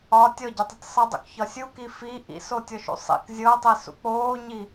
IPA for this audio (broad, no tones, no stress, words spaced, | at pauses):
ɒ tʲɔɟɒtˤʌtʲ sˤʌdˤṵkçɒ sʲuki fi ʔḭsotʲɔʃṵ sˤḭk zʲɤtˤisṵ k͡poːɲi